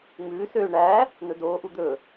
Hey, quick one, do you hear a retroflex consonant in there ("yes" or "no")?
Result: yes